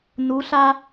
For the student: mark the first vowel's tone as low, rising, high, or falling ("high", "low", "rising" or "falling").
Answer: rising